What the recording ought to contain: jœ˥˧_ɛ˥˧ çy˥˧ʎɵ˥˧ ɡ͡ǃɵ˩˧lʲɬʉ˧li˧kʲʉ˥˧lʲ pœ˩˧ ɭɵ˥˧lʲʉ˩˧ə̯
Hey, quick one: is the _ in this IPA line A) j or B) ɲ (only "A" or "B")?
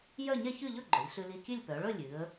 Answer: B